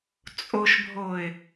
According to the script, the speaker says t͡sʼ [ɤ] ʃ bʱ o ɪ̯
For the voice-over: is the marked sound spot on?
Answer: no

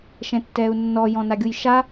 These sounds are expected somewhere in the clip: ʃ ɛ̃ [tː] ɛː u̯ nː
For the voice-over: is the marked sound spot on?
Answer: yes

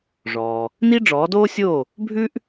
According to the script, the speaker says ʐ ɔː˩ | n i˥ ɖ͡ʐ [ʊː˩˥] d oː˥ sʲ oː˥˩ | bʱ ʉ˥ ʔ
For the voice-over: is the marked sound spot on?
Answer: no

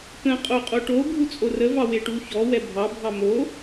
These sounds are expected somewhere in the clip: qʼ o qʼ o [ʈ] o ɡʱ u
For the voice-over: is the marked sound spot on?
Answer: yes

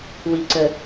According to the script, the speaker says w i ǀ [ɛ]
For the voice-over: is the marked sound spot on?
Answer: no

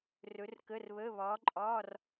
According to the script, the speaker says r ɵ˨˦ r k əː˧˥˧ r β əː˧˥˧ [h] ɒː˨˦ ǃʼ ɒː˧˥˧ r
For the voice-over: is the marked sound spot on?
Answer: no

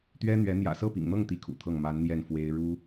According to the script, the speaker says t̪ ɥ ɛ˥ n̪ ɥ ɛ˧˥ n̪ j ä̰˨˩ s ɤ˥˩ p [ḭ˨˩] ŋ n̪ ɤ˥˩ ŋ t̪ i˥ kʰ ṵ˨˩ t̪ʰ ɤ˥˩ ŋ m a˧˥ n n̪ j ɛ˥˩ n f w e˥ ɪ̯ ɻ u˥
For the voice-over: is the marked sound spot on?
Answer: yes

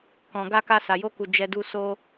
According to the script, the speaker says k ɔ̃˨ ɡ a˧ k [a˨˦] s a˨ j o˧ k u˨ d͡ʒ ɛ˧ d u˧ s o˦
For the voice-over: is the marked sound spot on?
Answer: no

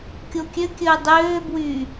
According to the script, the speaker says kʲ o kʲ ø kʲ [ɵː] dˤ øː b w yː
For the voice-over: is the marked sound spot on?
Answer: yes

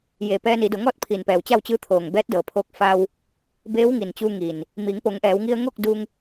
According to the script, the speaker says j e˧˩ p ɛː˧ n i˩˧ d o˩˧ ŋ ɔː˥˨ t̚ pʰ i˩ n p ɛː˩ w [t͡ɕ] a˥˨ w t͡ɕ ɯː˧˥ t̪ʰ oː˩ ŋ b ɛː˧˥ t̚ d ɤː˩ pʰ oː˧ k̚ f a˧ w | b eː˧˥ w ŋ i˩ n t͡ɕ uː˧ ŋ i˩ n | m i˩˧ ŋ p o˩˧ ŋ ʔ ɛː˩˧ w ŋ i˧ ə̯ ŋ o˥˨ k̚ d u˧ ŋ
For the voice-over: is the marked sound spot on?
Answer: yes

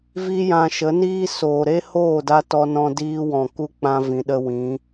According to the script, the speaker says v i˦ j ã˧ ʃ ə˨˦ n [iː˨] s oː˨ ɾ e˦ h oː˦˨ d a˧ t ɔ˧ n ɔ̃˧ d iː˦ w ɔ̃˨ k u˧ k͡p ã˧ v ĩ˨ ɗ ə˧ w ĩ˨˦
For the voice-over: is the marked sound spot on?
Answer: no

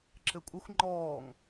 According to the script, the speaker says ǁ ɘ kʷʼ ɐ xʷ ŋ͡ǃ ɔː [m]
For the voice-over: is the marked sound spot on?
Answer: no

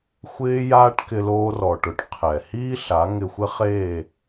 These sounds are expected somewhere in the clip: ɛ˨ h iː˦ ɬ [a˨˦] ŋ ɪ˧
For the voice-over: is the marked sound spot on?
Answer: yes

